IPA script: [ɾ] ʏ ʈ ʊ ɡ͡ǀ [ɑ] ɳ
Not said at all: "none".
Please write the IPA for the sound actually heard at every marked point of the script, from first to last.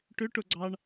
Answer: ʈ, ɑ

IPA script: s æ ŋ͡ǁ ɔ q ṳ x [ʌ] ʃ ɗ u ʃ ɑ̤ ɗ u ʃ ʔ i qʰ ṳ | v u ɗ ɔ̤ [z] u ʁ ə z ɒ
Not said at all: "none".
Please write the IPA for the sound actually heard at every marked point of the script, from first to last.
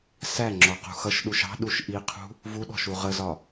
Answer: ʌ, ʃ

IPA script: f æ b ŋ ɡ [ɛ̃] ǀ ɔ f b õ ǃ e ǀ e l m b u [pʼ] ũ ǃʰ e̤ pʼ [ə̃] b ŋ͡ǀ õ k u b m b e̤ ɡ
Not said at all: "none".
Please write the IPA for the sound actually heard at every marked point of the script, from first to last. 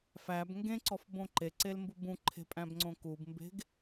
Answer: ẽ, b, æ̃

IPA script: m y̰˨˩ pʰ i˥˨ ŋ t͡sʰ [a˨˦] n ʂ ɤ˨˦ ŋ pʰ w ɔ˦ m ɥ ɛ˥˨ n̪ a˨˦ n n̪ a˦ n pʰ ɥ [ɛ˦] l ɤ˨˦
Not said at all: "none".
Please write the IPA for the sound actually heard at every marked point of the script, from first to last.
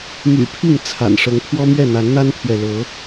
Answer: a̰˨˩, ɛ˨

